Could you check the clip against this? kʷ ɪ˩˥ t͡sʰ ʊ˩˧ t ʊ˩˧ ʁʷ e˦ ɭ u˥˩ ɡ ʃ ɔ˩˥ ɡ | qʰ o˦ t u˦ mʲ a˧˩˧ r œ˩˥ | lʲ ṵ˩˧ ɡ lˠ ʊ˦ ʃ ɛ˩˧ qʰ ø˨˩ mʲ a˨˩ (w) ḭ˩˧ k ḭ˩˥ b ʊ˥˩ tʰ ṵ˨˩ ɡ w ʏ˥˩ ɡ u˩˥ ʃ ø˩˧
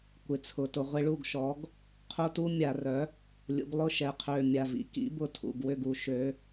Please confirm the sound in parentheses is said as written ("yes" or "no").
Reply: no